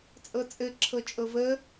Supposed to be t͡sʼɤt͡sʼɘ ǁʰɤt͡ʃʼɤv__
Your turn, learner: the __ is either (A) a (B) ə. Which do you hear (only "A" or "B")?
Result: B